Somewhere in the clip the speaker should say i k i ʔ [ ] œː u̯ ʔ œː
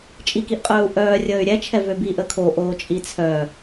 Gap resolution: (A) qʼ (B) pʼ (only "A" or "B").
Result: A